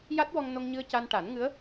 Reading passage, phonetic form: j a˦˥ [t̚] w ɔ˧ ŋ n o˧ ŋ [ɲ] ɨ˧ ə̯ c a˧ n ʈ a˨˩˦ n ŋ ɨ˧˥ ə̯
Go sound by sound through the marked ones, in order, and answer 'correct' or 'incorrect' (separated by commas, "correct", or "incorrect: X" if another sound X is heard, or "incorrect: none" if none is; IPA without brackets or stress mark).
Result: correct, correct